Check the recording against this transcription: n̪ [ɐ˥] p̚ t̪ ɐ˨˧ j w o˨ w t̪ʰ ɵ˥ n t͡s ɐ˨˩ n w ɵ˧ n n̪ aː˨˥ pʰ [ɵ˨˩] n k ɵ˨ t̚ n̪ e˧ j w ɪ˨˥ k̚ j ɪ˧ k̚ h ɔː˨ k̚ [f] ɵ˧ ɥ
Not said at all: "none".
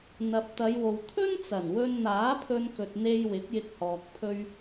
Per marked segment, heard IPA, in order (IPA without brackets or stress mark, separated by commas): ɐ˨, ɵ˧, pʰ